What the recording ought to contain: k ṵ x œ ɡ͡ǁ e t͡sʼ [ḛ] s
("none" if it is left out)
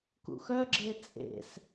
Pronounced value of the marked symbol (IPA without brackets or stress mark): ḛ